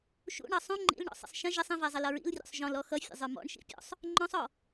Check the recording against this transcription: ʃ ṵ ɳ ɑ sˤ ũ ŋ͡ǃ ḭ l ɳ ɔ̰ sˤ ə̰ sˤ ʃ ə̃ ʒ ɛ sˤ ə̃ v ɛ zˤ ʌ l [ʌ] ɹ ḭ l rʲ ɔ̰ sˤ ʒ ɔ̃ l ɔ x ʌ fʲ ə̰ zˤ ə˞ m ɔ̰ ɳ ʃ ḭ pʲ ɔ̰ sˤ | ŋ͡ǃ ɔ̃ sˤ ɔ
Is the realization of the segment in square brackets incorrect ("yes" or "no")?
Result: no